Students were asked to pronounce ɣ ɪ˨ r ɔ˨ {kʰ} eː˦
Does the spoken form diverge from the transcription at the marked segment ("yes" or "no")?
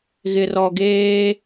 yes